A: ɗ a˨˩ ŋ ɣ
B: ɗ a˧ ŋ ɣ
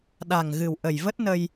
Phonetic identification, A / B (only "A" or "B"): A